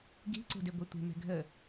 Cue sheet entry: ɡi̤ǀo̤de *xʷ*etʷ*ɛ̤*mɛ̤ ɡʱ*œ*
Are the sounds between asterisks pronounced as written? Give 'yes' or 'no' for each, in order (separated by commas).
no, no, no